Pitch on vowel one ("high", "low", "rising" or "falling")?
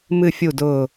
low